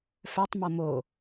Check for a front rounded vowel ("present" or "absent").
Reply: present